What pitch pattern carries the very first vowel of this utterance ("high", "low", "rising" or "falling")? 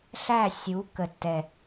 falling